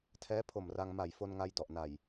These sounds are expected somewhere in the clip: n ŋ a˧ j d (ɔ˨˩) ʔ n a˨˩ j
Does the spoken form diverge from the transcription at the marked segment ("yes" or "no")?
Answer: no